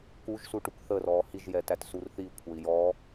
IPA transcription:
k u ʒ s u ʈ u k θ ə r ɔː h i ʒ j ɛ t æ t s u r θ i kʷʰ ə i̯ j ɔː

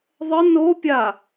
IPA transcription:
ðˤ ə n o pʲ a

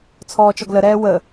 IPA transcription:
t͡sʰ ɔː t͡ʃ ɔ ɡ l ə ɾ ɛː w ə

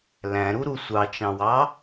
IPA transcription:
l æ̃ ɾ u ɾ u sʷ ɑ t͡ʃ ɑ̃ w ɑ

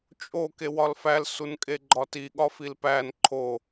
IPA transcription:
t͡ʃʼ o k e w ɒ l f æ l s u n kʼ e ɡ͡ǃ ɒ t i ɠ ɒ f i l p æ n ǃʰ o

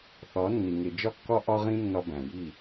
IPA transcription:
θ ɒ˨˦ nː i˨ ŋ e˨ d͡ʒ ɒ˦ kː ɒ˦ ʔ ɒ˦ ʁ ĩ˦ nː ɒ˦ b æ̃˨ j i˦˨

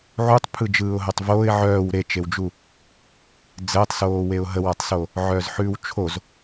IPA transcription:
ʕ u tˤ pʰ ɯ d͡ʒ ɯː ʊ̯ ɦ o tˤ v oː ɪ̯ ʕ œː w ɾ e t͡ʃ e w d͡ʒ u | d͡z əː tˤ s oː w e ʊ̯ ɦ ə w a tˤ s o | ʕ œː z ħ ʉː w t͡ʃʰ o z

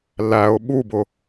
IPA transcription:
l æ ʊ̯ ɓ u b ʊ

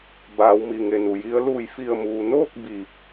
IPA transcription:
b aː˩˧ w m i˩ ŋ e˧˩ n u˩ j i˧˥ ə̯ l uː˥˨ j f i˧˩ ə̯ m uː˩ n oː˥˨ k̚ b iː˧˩ p̚

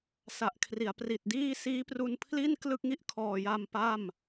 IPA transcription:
s a˨˩ ʔ kʰ r i˩˦ a̯ p r i˨˩ t̚ d iː˥˩ s iː˦˥ p r u˧ n pʰ l i˥˩ n k l ɯ˥˩ k̚ ŋ i˦˥ ʔ kʰ ɔː˨˩ j a˧ m p a˥˩ m

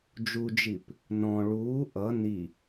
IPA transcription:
d͡ʒ u d͡ʒ i p | n ɔ̃ ɭ uː ʔ ʌ n i

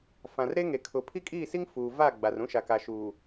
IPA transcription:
f ã˨ r ɾ e˦ ŋ e˨ kʰ ʊ˨ pʰ i˦ kʼ iː˦˨ s i˦ ŋ f uː˨ v a˦˨ ɡ͡b a˨ r ũ˦ ʃ a˨ k a˨ ʃ uː˨

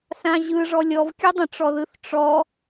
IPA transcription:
s ã ʑ ɯ ʐ ɔ lʲ ɔ v kʲ ɯ dˤ ə̃ ʈ͡ʂ ɔ ð ɯ θ ʈ͡ʂ ɔ

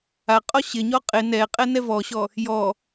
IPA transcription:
a qʼ ɔ ɕ ɪ ɲ ɔ qʼ ɪ n ɛ qʼ ɛ n ɛ v ɔ ɕ ɔ | j ɔ

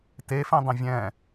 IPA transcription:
t e f ẽ dˤ ɛ̃ vʲ ɛ̃

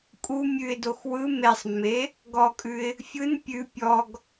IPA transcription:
kʼ u mʲ ʉ ɪ̯ d o x w ɯ m e sˤ mː e | ɡ ɔ kʼ ʉ ɪ̯ | fʲ ɯ n pʲ ʉ pʲ ɔ ɡ

